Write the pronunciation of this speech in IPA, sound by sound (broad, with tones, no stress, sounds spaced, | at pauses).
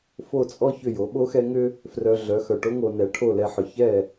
f o˥˩ t͡sʼ ɔ˥ ç ʏ˥˩ j o˩˥ ɓ o˥ x ɛ˥ ŋ ʏ˥ | f r œ˧ ɮ œ˩˥ x œ˩ ʈ o˥ ŋ o˧ n ɛ˩˥ ʈʰ o˥˩ l ɛ˧ ħ ʏ˩ ç ɛ˥˩